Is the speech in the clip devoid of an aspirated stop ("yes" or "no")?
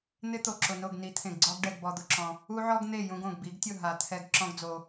no